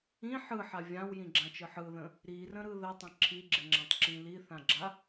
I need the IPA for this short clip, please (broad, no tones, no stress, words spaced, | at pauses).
ĩ ħɯħa vʲãwjĩɡ͡ǁãt͡ʃɯ ħɯðə̃ | ɾirə̃ɾɯ ðətˤə̃ ǁʰiɡ͡ǁɪŋ͡ǁãtˤǁĩ liθãɡ͡ǁa